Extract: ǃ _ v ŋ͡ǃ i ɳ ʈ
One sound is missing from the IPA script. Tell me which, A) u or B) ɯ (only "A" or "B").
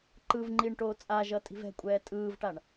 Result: B